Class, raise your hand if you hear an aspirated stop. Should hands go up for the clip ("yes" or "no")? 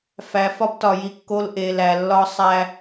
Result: no